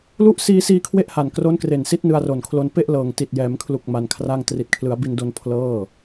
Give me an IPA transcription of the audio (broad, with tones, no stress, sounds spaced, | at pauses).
l u˦˥ ʔ s iː˧ s iː˧ kʰ w e˥˩ ʔ h a˨˩ n k r o˦˥ n k r e˨˩ n s i˦˥ t̚ n ɯ˧ a̯ r o˨˩ n kʰ l o˧ n p e˥˩ ʔ l ɤː˨˩ ŋ t i˨˩ t̚ j ɛː˩˦ m kʰ l u˨˩ k̚ m a˧ n kʰ r a˥˩ ŋ t r i˨˩ t̚ kʰ l ɯ˩˦ a̯ b i˧ n d o˧ n pʰ l ɤː˥˩